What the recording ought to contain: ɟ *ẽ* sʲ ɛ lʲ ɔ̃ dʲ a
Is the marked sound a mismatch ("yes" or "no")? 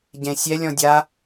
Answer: no